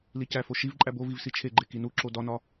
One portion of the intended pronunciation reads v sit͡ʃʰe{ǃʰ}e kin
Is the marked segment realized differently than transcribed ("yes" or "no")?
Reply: yes